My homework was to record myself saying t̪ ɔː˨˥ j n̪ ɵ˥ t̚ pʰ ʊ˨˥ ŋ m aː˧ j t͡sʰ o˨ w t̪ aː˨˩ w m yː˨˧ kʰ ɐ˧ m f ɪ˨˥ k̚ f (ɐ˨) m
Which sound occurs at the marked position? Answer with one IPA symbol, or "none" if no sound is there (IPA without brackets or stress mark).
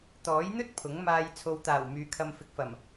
ɐ˨˩